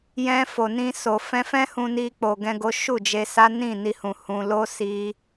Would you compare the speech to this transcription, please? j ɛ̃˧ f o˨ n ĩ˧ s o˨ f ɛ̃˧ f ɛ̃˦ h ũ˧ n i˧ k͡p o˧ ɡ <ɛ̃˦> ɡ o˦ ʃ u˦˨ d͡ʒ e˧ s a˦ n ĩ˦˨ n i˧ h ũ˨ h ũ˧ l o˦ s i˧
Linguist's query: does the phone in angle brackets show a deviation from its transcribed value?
no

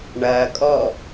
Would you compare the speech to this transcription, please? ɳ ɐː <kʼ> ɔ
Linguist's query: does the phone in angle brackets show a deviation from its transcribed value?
no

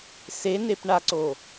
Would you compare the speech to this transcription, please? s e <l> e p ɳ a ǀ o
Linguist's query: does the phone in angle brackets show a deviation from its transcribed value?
yes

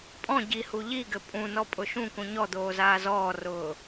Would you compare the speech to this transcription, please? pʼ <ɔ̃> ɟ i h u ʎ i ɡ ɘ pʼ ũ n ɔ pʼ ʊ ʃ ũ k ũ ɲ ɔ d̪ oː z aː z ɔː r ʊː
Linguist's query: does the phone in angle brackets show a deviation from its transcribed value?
no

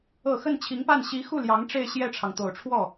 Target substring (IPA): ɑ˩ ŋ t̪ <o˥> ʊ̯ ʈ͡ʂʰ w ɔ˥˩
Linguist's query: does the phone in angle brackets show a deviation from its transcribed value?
yes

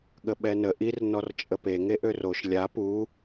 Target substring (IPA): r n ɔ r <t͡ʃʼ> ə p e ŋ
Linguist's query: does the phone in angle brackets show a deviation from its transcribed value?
no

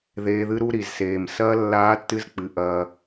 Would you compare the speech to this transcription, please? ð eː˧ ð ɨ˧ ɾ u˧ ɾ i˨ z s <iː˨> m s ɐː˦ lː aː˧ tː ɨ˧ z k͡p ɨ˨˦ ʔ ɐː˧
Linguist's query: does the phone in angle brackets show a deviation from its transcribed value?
yes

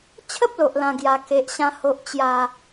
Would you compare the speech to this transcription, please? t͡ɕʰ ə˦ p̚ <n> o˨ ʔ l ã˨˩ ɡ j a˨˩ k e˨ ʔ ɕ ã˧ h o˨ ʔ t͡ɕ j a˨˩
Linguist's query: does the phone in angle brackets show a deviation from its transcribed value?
yes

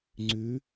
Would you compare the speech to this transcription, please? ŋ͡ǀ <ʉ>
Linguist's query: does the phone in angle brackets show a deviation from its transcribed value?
no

